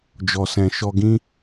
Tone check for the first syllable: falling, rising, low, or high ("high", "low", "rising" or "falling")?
low